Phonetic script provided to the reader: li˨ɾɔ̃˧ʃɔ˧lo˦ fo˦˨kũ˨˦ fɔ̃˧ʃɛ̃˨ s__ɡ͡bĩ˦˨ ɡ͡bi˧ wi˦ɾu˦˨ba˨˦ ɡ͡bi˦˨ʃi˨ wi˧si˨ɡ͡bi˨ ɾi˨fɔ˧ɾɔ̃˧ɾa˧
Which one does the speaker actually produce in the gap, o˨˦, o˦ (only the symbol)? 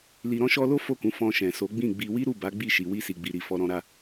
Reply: o˨˦